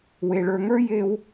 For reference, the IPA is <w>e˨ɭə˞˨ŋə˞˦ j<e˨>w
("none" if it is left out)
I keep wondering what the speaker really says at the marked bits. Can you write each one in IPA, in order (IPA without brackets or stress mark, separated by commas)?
w, e˦